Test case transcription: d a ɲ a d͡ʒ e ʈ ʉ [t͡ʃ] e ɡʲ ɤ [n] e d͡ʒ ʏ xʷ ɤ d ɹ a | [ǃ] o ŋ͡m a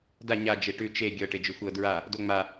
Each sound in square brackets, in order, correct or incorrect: correct, incorrect, incorrect

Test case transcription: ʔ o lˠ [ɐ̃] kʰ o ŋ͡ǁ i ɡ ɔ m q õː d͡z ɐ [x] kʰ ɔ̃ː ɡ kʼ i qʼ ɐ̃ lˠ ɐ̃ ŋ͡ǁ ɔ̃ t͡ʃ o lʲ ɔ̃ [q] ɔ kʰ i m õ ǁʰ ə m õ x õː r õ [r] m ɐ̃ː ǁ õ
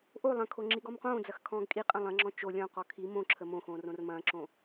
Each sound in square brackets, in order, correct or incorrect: correct, correct, correct, correct

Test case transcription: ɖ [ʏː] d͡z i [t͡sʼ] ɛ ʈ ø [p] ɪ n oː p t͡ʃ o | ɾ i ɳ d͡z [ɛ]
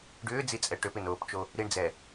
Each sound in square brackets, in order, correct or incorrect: correct, correct, correct, correct

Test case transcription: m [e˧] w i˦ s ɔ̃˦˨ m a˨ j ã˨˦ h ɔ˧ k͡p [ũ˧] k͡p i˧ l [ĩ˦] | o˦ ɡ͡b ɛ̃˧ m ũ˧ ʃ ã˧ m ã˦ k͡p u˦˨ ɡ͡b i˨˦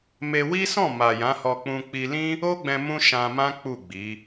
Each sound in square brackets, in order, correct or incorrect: correct, correct, correct

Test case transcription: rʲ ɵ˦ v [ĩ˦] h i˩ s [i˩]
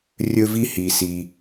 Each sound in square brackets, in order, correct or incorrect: incorrect, correct

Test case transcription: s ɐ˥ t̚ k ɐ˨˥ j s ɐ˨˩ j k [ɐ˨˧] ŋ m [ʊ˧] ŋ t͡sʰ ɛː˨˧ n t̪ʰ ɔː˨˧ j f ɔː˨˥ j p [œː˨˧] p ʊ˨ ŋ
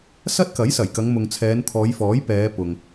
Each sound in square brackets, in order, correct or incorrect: correct, incorrect, incorrect

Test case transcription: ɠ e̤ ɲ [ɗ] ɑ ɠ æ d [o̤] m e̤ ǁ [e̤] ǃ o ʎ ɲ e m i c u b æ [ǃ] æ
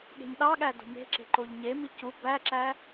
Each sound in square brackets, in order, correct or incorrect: correct, correct, correct, incorrect

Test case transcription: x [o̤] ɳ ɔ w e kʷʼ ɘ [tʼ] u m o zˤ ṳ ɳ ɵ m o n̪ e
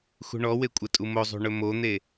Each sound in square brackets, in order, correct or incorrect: incorrect, correct

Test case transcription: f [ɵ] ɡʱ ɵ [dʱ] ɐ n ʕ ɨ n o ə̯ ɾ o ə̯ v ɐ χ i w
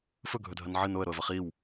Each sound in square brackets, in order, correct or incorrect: correct, correct

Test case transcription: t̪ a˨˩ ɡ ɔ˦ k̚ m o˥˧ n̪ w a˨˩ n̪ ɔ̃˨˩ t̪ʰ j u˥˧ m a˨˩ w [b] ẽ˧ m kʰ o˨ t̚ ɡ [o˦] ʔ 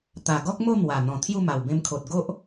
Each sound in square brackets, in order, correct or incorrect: correct, correct

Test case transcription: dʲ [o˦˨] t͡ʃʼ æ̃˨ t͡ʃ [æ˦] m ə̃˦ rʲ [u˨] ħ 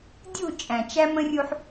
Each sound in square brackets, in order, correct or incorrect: incorrect, correct, incorrect

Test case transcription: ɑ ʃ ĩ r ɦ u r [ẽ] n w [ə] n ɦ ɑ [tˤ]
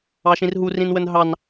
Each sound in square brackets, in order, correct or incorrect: incorrect, correct, incorrect

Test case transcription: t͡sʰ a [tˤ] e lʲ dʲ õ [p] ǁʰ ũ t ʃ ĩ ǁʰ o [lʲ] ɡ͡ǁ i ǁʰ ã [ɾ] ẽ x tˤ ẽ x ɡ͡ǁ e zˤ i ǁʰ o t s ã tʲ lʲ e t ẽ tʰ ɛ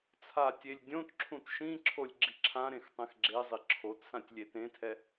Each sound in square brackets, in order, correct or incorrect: incorrect, incorrect, correct, correct

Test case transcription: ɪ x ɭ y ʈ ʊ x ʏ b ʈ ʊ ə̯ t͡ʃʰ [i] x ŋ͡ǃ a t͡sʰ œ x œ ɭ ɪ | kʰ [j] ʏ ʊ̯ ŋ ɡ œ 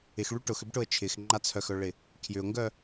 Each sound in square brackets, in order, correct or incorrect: incorrect, correct

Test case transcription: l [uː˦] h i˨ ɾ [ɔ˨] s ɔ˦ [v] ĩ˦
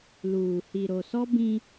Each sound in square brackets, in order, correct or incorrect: incorrect, incorrect, incorrect

